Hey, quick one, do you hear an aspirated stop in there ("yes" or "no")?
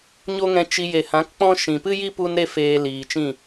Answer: no